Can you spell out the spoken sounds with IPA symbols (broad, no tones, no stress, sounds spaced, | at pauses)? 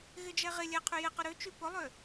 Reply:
ɣ ɪ d͡ʒ ɛ ʁ ɪ lʲ ɛ qʰ y j ɪ q ʊ ɾ ø t͡ʃ y p ʊ lˠ ø